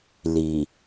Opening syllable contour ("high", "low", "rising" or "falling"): low